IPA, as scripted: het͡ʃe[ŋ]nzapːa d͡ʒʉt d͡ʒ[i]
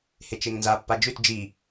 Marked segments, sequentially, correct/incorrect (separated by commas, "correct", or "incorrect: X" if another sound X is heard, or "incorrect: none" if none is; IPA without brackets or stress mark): correct, correct